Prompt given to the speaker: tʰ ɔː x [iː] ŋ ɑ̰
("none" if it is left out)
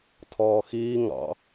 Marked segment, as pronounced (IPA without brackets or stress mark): iː